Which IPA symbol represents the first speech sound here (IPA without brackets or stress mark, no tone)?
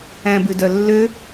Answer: æ̃